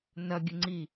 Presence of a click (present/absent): present